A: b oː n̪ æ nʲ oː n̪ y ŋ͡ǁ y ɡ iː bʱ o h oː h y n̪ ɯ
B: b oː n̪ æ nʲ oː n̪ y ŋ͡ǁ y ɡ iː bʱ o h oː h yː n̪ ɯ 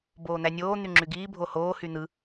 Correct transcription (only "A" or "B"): A